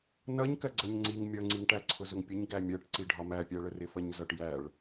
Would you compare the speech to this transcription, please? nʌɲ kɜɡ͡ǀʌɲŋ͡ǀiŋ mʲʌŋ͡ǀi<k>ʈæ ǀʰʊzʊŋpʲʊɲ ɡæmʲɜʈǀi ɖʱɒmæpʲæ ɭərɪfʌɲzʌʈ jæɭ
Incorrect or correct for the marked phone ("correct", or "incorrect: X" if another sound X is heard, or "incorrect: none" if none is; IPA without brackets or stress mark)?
incorrect: ŋ